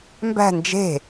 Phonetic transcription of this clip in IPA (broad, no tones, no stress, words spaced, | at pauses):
mbæ̤ nd͡ʒe̤